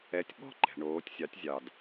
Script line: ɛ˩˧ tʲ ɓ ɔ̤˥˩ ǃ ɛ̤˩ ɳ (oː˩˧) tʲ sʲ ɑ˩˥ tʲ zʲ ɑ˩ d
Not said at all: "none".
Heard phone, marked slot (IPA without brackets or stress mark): oː˩˧